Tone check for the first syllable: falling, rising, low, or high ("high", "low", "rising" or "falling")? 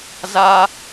high